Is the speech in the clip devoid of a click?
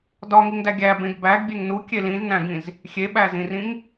yes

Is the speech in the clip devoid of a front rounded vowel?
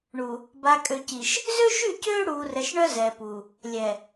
no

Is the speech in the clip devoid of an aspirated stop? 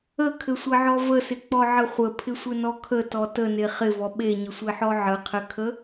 no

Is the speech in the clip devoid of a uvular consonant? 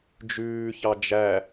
yes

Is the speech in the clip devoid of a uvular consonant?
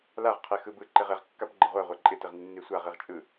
no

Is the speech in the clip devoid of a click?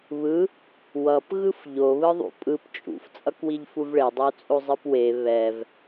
yes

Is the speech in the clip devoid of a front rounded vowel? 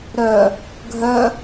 no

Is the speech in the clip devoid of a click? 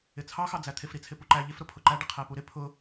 no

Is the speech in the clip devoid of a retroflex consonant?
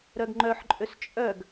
yes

